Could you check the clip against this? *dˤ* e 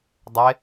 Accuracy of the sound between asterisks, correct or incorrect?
correct